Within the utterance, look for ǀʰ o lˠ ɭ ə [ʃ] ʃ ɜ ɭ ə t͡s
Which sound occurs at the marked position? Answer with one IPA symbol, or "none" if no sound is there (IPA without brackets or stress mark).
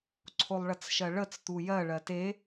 t͡s